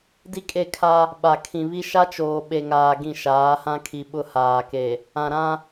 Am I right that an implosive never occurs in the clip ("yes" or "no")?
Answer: no